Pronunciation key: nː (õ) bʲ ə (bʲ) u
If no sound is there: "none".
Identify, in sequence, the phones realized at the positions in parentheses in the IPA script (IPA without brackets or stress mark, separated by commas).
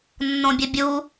õ, bʲ